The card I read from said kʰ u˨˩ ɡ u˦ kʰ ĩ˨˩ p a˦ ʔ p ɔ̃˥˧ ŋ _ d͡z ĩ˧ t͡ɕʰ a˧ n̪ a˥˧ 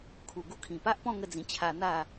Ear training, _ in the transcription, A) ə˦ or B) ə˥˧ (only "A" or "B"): B